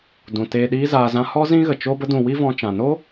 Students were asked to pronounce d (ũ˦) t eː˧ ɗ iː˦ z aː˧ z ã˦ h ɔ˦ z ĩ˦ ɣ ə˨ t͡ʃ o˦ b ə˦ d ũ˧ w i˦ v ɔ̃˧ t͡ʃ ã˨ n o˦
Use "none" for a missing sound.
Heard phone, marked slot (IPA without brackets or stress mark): ũ˨